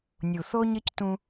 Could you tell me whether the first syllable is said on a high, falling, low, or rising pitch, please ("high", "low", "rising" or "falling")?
low